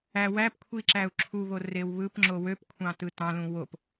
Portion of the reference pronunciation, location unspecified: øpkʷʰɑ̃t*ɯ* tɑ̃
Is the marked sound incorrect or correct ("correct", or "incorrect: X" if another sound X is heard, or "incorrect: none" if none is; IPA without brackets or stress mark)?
correct